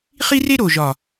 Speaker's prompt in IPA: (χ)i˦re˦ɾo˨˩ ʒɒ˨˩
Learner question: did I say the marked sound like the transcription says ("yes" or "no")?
yes